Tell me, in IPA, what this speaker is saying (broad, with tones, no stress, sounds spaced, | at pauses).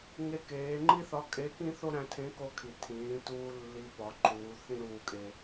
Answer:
ŋ e˧ k eː˩˧ ŋ͡ǃ i˥ θ ɒ˧˥ kʼ e˧˥ k ĩ˥ θ o˥ ɾ æ̃˧ tʰ ẽ˧˥ k o˧ kʰ i˩ tʰ ĩː˩˧ t uː˧ lː i˧˥ p ɒ˩˧ ǃ uː˩˧ θ ĩ˥ ɾ uː˧ kʼ e˧